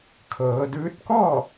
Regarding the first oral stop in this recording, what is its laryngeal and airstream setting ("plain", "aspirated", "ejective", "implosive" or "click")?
aspirated